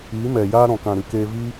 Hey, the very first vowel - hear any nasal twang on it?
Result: no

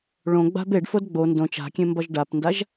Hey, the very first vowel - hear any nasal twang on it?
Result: yes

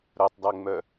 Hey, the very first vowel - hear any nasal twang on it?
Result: no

